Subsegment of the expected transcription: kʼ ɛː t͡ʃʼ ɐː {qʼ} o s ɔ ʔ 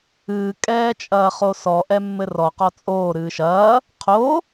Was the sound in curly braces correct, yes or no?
no